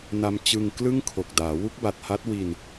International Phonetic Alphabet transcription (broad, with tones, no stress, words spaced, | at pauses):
na˧mt͡ɕɯ˧ŋ klɯ˥˩ŋ kʰo˨˩k̚daː˩˦ wu˦˥k̚ba˨˩t̚ha˦˥t̚ wi˧n